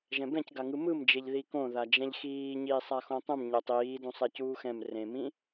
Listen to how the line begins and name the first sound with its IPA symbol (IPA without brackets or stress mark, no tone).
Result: ʒ